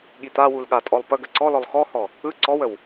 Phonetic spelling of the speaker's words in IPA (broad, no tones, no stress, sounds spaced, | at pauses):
ɠ i t̪ a w u l ɠ a tʼ ɔ lˠ p ə ɡ ə ǀ ɔ l ɔ lˠ x ɔ h ɔ | ɯ ǀ ɔ w ə w